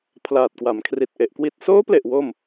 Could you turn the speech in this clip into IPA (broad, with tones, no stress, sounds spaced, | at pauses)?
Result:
pʰ l aː˨˩ t̚ k w a˩˦ m kʰ r i˨˩ t̚ ʔ e˨˩ ʔ k w i˨˩ t̚ s oː˦˥ p l e˨˩ ʔ w o˥˩ m